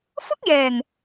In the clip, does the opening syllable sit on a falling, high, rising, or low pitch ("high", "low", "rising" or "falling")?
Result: high